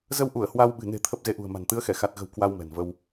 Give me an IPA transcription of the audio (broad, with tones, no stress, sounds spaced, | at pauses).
z ə˧ w ʔ u˧˩ ə̯ h w a˧ w ɓ ɨ̤˨˩ n e̤˨˩ t̪ʰ ə˦˥ p̚ z e˨˦ ʔ ṳ˨˩ ə̯ m a̤˨˩ n t̪ ɨ˨˦ ə̯ x ɛ˧˩ x a˨˩ t̚ ɣ ə̤˨˩ w k w a˧ w m ɛ̤˨˩ n v ə˧ w